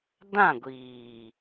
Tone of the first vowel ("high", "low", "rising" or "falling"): falling